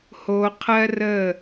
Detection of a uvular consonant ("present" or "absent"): present